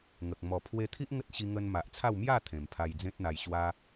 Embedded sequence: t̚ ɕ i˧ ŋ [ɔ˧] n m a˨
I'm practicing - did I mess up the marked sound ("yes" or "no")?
yes